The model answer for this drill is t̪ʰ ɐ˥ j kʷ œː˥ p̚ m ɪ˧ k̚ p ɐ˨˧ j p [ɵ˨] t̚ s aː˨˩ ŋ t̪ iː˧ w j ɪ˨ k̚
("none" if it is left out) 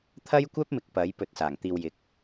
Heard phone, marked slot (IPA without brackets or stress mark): ɵ˨